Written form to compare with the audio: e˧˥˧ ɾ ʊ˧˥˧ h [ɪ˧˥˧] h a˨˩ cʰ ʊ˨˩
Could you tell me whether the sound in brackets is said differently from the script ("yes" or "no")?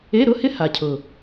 yes